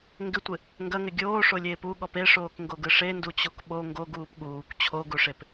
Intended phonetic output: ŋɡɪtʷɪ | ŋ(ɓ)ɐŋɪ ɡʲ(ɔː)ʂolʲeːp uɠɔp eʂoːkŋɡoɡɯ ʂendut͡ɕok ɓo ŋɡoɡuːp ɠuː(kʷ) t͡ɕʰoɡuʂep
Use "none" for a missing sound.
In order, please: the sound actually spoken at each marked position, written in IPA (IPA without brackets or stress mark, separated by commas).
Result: ɡ, oː, kʷ